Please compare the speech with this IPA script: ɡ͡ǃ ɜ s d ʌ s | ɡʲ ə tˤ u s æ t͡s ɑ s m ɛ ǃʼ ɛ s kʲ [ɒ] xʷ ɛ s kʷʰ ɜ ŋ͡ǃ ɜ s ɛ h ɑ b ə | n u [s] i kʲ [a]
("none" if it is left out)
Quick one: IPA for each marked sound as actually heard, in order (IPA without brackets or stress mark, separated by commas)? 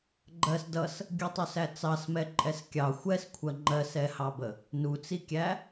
ɑ, t͡s, æ